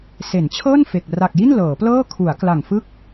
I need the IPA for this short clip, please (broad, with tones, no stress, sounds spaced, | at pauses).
s e˩˦ n t͡ɕʰ ɤː˥˩ n f e˨˩ k̚ r a˨˩ k̚ j i˥˩ n l ɤː˩˦ p l ɤː˥˩ kʰ u˩˦ a̯ k l a˨˩ ŋ f ɯ˥˩ k̚